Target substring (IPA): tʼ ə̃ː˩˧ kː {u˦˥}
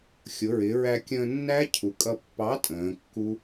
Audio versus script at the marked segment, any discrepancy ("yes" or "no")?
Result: no